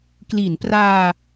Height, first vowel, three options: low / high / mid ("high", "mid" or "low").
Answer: high